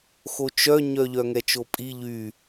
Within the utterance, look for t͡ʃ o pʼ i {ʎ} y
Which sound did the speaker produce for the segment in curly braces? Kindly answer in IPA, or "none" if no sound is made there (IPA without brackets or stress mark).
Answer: ʎ